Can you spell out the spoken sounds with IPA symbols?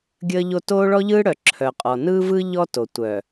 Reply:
ɡʲ əː˦ ʎ o˦ t oː˦ ɭ ɔ˦ ʎ ɯː˦ ɽ œ˨ ǁʰ œ˨ qʼ ɔ˨ n ɯː˦ v ɯ˦ ʎ ɔ˦ t o˨ tʷ œ˨

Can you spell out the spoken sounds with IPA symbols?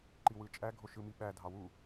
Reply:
ǃ i w ɯ t͡ʃʼ æ ɡʱ o ʃ ɯ m i ɓ æ dʱ ɑ w u

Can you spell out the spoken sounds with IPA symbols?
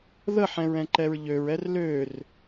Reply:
ð ə ħ ɛ̃ ɹ ɛ̃ ǃ ɛ ɹ ʎ ø ɹ ɛ r l ø r

